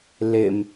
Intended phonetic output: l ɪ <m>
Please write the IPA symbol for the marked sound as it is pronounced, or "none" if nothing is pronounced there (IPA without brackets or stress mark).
m